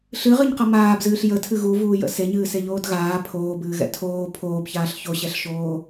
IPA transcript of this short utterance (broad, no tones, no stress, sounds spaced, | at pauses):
ɬ ɨ ʁ ɨ ɲ q ʌ m aː b z ɨː ɬ j ə tʰ ɨ ɣ u v uː j ə̰ s e ɲ ɨː s e ʎ oː d ɣ aː pʰ oː b ɨː ɣ ɛ̰ tʰ oː pʰ oː b ç aː ɬ ç o ɕ ɛ ɬ ʃ oː